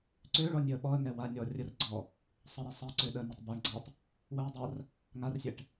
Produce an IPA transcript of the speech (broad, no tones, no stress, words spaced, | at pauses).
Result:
ǀøɭɔ nʲøə̯ɓɔə̯ŋɛ wa nʲɔ rʲərɡ͡ǀɔ | sˤəɾɛ sˤɛǀø ɗə nətˤbɔɳɡ͡ǀatˤ | wəʊ̯dˤar | ŋarsʲɛʈ